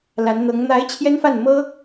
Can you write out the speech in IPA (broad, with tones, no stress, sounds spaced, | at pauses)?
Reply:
l a˧˥ n n̪ ɤ˧˥ ŋ n̪ a˧˥ ɪ̯ t͡ɕʰ j ɛ˥ n f a˥˩ n m ɤ˥